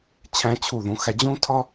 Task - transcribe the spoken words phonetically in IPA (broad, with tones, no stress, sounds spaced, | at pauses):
t͡ɕʰ æ̃˧ t͡ɕʰ u˧˩ ð ũ˩˧ x æ˧ d͡ʑ ũ˥ tʰ ɒ˥